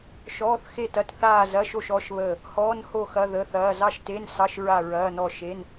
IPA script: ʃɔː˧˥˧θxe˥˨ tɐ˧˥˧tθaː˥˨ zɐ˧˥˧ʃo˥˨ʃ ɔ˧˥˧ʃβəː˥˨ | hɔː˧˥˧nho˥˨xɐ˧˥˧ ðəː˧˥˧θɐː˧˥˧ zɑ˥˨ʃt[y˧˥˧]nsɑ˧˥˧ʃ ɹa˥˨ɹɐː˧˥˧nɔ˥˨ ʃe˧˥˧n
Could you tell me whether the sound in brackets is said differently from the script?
yes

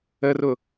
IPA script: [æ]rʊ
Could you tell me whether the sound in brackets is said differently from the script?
yes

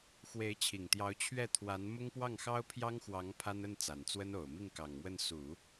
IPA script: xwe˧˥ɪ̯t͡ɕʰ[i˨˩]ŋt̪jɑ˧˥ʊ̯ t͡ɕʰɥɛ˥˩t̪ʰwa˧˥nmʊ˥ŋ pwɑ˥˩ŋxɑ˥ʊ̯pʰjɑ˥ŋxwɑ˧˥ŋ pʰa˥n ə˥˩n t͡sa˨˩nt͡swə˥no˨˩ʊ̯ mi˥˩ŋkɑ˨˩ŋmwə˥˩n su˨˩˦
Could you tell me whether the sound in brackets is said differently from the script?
no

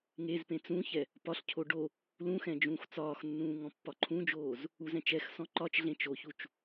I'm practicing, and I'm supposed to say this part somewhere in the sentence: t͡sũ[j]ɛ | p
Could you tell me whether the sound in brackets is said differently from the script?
yes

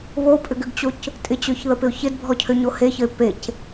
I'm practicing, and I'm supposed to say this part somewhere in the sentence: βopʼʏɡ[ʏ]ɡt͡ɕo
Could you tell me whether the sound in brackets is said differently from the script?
no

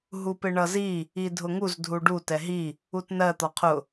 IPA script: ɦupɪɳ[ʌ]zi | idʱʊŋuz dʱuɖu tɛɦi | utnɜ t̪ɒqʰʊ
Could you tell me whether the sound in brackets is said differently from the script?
no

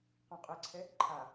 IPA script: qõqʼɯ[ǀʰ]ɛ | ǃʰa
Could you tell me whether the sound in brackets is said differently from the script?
no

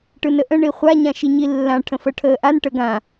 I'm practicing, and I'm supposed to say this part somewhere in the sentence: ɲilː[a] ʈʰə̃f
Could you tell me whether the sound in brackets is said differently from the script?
yes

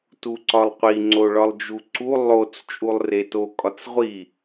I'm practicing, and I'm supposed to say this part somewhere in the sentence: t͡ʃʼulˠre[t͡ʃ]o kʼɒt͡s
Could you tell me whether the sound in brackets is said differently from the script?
yes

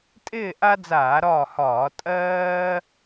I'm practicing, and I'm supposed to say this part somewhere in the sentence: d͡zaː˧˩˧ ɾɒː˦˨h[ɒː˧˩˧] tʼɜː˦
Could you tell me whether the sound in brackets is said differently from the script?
no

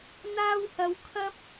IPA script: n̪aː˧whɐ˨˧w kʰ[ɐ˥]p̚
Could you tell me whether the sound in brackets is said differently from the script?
no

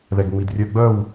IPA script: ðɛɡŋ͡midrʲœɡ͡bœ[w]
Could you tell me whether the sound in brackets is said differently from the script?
no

